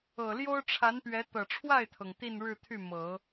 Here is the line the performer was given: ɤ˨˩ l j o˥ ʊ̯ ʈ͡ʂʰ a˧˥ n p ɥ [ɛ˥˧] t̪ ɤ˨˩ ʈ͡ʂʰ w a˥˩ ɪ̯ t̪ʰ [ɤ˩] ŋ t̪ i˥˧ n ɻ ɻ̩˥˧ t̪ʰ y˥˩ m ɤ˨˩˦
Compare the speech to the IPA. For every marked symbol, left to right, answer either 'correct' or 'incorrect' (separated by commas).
incorrect, correct